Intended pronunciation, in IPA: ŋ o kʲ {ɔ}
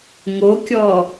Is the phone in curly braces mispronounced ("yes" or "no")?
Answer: no